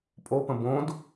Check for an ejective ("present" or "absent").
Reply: present